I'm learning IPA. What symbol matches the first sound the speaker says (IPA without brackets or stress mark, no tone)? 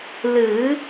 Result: l